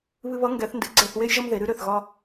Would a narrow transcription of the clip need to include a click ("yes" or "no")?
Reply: yes